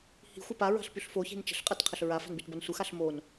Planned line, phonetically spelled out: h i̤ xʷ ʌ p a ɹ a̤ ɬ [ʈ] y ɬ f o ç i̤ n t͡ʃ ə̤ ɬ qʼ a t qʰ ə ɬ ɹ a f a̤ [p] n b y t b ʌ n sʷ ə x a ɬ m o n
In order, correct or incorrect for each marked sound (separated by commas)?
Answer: incorrect, incorrect